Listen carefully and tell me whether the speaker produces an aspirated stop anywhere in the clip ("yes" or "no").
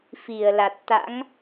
no